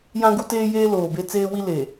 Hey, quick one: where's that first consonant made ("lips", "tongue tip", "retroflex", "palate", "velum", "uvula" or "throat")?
palate